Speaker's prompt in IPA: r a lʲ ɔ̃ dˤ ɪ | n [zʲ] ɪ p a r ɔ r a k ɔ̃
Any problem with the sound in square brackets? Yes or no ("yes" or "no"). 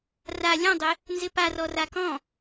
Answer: yes